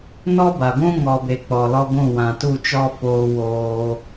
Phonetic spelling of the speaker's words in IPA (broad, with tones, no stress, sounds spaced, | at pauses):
n ɔ˦ b a˨ ɡʷ ũ˦ ŋ ɔ˨ b e˨ k͡p ɔ˨ l ɔ˦ ɡʷ ũ˦˨ w ã˨ t u˦˨ t͡ʃ ɔ˦ f oː˧ w oː˧